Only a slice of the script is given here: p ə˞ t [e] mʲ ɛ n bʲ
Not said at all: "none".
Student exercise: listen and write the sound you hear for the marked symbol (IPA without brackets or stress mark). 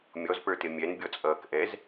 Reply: e